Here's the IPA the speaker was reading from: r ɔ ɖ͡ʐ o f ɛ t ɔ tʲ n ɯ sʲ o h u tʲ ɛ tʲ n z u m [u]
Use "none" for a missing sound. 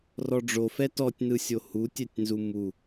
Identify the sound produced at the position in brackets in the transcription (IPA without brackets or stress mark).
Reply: u